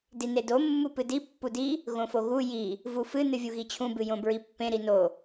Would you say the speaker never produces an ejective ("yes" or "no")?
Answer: yes